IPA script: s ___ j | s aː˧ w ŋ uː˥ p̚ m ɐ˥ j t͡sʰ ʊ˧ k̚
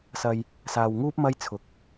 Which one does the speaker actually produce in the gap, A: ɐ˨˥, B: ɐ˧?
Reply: B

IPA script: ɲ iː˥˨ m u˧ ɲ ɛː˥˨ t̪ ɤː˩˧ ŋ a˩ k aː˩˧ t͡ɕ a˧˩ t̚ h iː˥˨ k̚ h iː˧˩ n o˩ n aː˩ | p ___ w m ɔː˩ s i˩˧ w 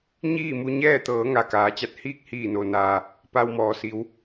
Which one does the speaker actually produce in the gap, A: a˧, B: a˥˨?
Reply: A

